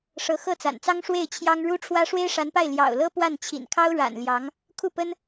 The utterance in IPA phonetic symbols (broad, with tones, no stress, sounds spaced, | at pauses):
ʂ ɤ˧˥ x ɤ˥˩ t͡s a̰˨˩ n t͡s ɑ˥ ŋ ʂ w e˥˩ ɪ̯ t͡ɕʰ j ɑ˥ ŋ ɻ u˥ ʈ͡ʂʰ w ä˥ ʂ w e˥ ɪ̯ ʂ a˧˥ n p a˥˩ ɪ̯ l j ɑ̰˨˩ ʊ̯ l ɤ˥ p w a˥˩ n t͡ɕʰ ḭ˨˩ n kʰ ɑ˥ ʊ̯ ɻ a̰˨˩ n l j ɑ˧˥ ŋ | kʰ u˥˩ p ə˥ n